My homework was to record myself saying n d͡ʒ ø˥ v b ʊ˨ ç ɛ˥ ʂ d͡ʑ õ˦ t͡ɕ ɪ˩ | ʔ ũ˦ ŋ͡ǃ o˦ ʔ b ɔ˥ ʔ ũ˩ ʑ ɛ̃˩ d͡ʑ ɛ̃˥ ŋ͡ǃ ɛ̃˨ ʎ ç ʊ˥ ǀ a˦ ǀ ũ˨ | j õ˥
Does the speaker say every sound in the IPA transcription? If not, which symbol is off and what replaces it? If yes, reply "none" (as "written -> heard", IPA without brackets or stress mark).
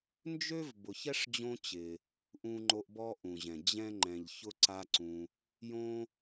none